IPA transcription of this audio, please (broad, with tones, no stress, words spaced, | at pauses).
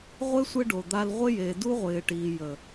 ʁʷe˦ sʷɪ˦ɖo˨ d̪a˧lʁʷɪ˦je˨ du˦ʁʷɪː˨ʈiː˨jə˨